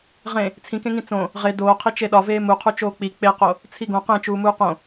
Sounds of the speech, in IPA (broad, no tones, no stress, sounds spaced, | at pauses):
ʁ ẽ | t͡sʰ ĩ k ẽ ŋ ĩ t͡s õ | ʁ e d oː qʰ i t͡ʃ e ɗ ɒ v eː m u qʰ u t͡ʃ oː k͡p i k͡p e q o | t͡sʰ i ɡ õ q ẽ t͡ʃ uː m uː q õ